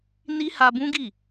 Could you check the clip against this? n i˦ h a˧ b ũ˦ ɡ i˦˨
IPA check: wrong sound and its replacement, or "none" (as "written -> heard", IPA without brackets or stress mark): none